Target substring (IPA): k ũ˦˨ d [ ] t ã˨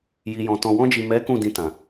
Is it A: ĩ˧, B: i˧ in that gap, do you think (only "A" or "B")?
A